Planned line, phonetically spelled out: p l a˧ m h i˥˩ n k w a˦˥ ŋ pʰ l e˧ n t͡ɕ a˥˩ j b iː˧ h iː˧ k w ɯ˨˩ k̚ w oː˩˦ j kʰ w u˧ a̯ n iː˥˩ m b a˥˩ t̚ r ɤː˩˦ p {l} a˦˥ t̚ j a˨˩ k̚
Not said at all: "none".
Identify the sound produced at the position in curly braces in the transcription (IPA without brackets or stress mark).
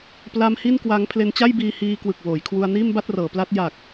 l